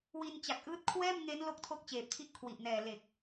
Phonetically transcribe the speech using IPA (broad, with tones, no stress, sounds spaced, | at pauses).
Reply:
w i˧ n t͡ɕ a˨˩ k̚ ʔ ɯː˦˥ t̚ kʰ w ɛː˥˩ m ŋ e˦˥ n l o˦˥ k̚ tʰ o˦˥ k̚ t͡ɕ eː˨˩ p̚ tʰ i˦˥ ʔ kʰ w i˨˩ ʔ n ɛː˨˩ l e˨˩ k̚